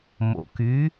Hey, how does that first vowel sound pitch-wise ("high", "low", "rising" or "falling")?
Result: low